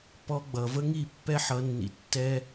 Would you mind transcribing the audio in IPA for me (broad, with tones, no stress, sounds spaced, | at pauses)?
p ɔ˧ ɡ͡b ʌ˨ v ə˦ ŋ i˦˨ pː ɛ˦ ħ ʌ˧ nː ḭ˧ tː ɛ˦